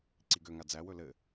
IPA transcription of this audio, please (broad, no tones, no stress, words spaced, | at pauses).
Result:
ǀiɡøŋa d͡zæwɵ lɘ